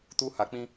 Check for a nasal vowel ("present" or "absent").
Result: present